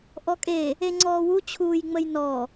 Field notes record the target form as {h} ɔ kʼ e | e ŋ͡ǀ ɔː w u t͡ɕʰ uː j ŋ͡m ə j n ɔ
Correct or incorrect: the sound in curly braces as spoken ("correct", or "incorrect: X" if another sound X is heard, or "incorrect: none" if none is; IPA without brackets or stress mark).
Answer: incorrect: ʔ